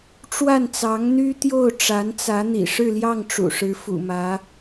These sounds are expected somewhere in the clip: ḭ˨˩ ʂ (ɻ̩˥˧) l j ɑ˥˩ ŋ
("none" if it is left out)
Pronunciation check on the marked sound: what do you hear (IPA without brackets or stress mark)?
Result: ɻ̩˥˧